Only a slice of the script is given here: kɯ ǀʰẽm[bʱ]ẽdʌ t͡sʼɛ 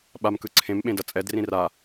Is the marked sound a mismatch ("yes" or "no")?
yes